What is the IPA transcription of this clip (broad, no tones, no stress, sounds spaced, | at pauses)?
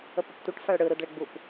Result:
ə p ə p tʷ ə ʈ f a ɭ ɽ ɯ ɾ u d ɭ ɘ ɡ͡b u p